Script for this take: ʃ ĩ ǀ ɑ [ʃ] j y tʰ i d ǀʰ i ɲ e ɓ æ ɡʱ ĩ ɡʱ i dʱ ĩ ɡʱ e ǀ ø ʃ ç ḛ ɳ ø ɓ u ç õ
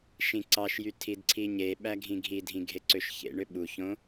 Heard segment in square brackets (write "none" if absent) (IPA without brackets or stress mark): ʃ